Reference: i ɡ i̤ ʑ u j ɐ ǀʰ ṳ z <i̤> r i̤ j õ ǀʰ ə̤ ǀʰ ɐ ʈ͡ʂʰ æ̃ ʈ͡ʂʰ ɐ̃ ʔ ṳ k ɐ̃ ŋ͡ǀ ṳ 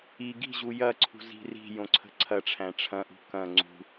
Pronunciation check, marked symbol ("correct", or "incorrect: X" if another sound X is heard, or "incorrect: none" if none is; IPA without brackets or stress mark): correct